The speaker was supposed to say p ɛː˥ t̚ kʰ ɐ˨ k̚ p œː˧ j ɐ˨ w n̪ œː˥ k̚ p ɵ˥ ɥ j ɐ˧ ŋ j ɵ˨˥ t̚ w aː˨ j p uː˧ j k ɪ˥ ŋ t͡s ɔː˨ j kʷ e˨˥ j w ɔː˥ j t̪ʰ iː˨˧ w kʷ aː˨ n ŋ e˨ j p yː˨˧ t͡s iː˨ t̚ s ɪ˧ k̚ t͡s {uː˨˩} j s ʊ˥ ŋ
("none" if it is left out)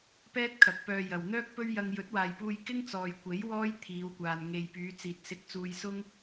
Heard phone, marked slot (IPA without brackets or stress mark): uː˧